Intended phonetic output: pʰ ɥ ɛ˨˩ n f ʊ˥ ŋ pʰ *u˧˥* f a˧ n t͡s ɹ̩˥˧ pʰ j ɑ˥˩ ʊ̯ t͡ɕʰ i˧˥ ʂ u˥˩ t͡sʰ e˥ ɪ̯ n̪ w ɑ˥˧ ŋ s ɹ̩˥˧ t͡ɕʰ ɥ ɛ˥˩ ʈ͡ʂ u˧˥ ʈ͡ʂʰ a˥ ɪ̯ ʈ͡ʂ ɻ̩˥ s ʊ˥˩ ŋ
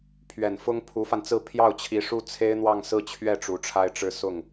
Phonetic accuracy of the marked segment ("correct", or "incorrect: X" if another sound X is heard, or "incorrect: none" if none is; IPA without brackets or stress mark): correct